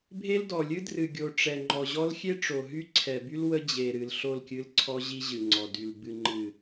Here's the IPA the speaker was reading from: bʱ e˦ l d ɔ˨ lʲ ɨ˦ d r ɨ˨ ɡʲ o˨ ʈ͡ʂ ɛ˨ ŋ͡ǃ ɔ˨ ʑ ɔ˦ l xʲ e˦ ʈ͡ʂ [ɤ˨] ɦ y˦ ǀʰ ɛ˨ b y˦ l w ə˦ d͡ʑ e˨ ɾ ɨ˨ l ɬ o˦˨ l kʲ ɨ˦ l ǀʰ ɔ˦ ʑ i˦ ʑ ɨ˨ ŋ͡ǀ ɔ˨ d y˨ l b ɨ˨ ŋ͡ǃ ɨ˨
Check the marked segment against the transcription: incorrect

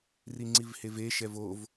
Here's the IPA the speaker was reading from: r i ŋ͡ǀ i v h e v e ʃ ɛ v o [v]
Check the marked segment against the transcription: correct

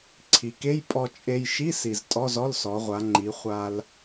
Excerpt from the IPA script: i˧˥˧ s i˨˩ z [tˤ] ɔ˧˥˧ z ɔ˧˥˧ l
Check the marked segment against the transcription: incorrect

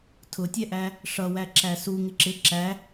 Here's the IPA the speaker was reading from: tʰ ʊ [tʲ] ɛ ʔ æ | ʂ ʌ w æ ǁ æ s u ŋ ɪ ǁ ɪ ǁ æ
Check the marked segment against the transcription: correct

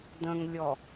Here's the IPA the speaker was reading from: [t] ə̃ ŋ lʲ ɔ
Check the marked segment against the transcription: incorrect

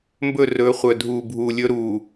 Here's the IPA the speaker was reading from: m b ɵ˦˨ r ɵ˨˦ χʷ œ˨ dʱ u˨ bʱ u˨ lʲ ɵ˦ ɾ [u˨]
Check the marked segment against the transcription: correct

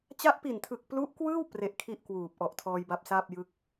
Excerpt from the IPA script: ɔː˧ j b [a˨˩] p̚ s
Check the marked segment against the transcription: incorrect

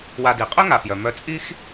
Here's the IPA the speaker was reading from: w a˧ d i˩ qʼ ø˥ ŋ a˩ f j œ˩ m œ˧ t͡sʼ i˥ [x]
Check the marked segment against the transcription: correct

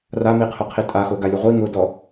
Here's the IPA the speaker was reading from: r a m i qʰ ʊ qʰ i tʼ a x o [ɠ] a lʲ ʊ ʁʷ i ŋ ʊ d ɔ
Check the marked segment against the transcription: incorrect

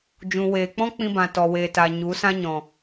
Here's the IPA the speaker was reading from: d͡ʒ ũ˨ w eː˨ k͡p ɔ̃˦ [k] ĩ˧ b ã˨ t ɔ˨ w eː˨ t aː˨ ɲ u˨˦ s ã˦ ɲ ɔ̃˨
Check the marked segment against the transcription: incorrect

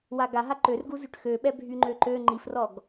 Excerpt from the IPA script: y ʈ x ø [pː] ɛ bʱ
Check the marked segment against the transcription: incorrect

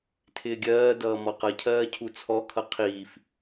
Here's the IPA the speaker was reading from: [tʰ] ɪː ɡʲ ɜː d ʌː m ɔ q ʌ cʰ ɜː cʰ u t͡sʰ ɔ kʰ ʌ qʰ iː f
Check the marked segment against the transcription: correct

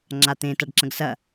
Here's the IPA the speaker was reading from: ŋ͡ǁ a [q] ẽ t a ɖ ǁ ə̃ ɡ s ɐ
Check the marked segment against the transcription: incorrect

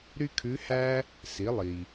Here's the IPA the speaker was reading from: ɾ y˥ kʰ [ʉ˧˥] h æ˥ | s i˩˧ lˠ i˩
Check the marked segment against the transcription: correct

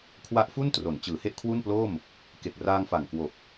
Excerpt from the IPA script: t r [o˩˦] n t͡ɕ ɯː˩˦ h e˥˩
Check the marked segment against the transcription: correct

